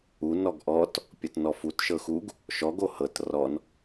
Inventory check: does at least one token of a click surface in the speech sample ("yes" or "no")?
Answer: no